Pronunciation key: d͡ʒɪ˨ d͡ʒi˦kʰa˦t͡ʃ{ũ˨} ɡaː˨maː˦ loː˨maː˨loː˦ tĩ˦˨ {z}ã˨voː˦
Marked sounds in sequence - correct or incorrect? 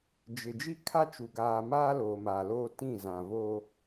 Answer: incorrect, correct

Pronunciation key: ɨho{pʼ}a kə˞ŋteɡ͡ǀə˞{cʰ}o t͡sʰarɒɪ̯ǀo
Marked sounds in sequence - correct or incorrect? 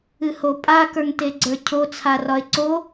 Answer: correct, correct

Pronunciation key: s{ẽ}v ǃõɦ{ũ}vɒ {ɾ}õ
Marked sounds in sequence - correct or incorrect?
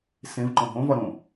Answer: correct, incorrect, correct

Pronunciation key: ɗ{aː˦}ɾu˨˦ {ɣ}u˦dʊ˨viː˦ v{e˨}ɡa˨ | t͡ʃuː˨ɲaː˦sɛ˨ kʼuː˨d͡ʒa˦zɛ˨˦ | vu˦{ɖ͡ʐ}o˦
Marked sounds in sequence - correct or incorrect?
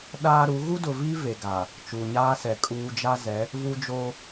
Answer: correct, correct, correct, incorrect

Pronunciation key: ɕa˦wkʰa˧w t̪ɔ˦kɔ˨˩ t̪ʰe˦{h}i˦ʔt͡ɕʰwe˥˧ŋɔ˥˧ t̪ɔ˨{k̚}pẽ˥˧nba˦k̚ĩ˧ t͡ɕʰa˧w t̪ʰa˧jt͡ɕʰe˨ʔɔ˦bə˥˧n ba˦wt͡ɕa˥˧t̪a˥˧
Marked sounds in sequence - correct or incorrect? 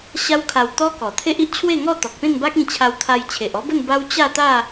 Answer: incorrect, correct

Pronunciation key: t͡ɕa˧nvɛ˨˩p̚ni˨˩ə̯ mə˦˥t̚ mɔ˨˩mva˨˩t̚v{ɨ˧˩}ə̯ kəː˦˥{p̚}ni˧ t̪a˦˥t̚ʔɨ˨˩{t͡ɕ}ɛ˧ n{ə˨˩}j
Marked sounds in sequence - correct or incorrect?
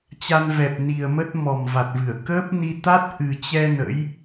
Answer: correct, correct, correct, incorrect

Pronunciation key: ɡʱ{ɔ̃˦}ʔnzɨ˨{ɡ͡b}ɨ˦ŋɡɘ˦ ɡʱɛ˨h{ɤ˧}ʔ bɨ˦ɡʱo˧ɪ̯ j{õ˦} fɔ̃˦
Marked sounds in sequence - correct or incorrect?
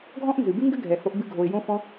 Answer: correct, incorrect, incorrect, correct

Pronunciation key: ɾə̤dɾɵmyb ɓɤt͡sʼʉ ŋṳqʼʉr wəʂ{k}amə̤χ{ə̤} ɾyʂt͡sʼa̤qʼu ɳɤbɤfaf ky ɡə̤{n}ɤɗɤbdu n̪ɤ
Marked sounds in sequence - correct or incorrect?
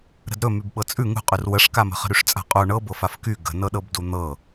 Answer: correct, correct, correct

